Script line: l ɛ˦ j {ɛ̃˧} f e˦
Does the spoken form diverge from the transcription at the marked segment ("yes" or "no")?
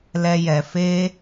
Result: yes